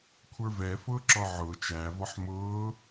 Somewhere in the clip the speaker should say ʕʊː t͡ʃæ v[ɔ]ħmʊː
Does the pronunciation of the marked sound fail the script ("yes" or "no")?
no